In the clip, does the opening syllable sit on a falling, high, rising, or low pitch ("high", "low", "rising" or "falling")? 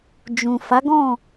low